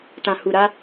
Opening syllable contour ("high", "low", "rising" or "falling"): low